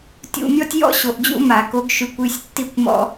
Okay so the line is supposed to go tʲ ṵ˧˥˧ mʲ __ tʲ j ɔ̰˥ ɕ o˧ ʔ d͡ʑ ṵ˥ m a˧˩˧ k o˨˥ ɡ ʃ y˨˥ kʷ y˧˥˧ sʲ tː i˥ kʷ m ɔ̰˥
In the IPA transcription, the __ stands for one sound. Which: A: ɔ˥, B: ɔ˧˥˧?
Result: A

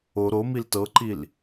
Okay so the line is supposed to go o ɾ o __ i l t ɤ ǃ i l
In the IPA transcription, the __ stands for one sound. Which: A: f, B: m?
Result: B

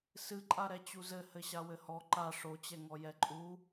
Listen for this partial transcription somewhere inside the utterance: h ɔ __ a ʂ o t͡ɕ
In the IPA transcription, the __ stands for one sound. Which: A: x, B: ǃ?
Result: B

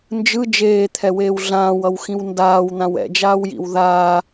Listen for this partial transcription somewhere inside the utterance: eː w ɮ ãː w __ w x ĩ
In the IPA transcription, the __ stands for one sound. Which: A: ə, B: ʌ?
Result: B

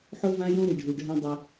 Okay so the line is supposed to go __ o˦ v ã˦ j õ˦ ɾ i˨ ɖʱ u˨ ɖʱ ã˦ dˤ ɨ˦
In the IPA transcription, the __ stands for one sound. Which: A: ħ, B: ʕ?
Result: A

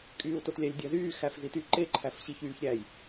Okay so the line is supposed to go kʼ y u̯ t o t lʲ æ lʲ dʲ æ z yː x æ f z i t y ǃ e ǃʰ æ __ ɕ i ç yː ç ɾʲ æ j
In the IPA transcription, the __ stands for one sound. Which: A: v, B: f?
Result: B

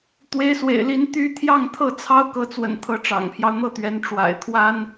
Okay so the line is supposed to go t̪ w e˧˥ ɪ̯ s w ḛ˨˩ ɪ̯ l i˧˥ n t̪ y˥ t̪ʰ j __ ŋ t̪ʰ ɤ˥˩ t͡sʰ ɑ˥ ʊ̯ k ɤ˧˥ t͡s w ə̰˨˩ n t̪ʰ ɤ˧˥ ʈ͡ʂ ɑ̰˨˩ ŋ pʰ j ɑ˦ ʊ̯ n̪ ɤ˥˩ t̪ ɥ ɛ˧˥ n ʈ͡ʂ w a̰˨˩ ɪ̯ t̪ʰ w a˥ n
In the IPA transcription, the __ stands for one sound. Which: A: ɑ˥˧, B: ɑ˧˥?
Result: A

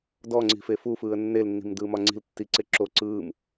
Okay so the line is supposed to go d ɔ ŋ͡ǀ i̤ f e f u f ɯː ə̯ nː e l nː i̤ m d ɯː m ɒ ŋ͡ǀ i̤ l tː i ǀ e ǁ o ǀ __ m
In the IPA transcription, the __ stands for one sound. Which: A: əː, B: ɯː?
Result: B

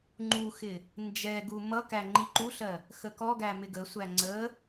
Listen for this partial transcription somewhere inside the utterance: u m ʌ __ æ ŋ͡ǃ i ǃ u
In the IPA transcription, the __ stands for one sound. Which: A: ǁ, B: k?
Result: B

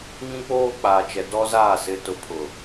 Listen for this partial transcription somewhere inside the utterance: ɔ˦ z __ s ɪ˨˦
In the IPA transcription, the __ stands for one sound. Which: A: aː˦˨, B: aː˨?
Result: A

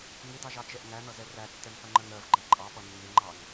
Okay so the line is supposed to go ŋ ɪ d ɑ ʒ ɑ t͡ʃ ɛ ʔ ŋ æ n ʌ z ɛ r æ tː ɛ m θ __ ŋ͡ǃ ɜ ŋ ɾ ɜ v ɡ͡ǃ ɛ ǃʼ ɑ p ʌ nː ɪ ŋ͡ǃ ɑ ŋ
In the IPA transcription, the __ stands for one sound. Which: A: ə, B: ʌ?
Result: B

